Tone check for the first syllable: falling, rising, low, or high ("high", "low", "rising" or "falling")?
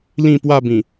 falling